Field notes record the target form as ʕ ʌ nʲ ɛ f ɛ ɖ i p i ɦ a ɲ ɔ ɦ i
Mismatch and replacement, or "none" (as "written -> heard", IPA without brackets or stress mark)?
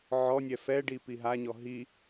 ʌ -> ɔ